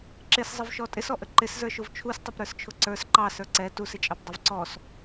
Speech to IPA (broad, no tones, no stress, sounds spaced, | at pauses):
ǁ ɪ s zˤ ɪ v ʃ ɔ tʼ ɪ s ɔ ʔ ə ǃ ɪ s z ə˞ ʃ ʊ v t͡ʃʰ u s tˤ ʊ p ɾ ə˞ s t͡ʃʰ ʊ ǀ ə˞ s ǃ ɑ s ə˞ ǀ ɛ t u s ɪ t͡ʃʼ ɑ p dˤ ʊ v ǀ ɔ s